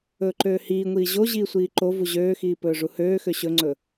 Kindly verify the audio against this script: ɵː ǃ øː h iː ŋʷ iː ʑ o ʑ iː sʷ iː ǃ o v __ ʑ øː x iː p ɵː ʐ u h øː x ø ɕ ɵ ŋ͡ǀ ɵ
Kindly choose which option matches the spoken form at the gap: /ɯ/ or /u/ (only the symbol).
u